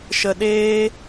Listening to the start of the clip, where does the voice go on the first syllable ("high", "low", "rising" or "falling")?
low